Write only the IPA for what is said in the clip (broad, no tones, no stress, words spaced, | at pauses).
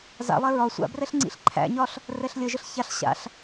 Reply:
za̰lˠɛ ɹɒ sʷa̰brɛɬ ŋ͡ǀḭɬǃʰæ̰ɲɒɬ | rɛɬlʲəʒəɬ çaɬ ɕa̰ɬ